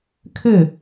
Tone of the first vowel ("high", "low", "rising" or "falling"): falling